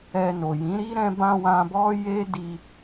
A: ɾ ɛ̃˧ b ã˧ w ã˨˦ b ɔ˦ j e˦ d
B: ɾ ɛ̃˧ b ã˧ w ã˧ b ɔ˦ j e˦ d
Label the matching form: B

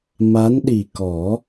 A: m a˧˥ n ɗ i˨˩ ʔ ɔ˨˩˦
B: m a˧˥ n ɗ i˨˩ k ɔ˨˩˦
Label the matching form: B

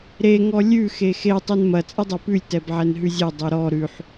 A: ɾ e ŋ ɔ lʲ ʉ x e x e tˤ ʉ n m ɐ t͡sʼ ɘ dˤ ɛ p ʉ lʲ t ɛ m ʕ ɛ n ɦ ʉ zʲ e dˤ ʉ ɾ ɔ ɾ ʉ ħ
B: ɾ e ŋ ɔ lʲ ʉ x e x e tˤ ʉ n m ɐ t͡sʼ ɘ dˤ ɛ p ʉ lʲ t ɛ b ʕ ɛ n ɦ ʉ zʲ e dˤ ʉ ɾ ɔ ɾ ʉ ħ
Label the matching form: B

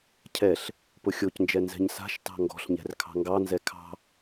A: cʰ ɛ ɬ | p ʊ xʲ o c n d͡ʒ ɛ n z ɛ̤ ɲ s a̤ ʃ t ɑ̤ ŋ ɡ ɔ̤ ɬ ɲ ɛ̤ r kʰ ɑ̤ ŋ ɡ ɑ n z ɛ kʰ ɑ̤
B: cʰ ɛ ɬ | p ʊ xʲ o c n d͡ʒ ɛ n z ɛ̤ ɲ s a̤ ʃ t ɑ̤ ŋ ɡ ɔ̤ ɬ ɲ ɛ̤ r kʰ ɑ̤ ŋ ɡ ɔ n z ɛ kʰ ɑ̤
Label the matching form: A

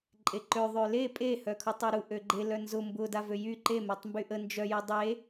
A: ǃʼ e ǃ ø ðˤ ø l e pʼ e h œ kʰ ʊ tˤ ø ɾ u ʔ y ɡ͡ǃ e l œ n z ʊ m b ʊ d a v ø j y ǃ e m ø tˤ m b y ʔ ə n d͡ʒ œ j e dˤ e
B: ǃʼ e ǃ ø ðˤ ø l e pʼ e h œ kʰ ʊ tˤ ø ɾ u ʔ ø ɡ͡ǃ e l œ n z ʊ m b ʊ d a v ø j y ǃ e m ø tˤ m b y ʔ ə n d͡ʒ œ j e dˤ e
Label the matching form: B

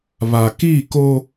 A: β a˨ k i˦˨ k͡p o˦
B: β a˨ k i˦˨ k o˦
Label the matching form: B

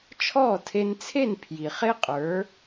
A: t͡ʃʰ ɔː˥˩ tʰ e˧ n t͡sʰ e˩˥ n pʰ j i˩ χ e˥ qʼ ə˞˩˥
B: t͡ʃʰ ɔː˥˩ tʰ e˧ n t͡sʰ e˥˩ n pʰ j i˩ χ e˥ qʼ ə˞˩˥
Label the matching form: B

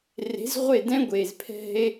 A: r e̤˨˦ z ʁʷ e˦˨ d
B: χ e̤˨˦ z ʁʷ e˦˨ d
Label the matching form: A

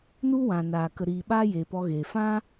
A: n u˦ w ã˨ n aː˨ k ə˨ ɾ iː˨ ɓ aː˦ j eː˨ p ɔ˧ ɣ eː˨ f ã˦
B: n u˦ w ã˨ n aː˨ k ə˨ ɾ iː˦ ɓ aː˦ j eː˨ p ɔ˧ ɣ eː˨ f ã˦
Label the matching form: A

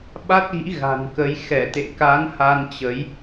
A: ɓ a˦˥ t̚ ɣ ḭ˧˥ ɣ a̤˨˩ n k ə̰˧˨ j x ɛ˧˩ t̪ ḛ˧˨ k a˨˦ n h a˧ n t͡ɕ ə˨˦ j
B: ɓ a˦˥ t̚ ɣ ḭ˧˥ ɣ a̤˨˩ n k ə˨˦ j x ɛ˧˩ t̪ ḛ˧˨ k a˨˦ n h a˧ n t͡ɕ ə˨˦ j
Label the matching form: B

